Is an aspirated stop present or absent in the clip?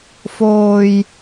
absent